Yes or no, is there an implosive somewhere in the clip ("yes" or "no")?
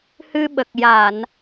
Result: yes